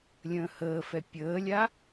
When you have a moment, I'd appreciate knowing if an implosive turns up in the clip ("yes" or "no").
no